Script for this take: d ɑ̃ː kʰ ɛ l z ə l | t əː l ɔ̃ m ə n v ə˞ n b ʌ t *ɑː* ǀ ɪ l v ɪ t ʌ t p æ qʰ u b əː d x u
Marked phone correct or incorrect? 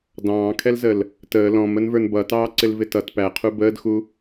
correct